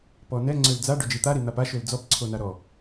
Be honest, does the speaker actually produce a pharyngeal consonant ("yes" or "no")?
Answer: no